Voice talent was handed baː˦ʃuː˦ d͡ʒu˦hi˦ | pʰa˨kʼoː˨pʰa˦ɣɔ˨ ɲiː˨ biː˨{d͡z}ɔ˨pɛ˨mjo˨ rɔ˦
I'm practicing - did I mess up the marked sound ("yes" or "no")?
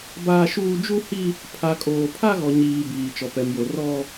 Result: yes